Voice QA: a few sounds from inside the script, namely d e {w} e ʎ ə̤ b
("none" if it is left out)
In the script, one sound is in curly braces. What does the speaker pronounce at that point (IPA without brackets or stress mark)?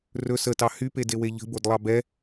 w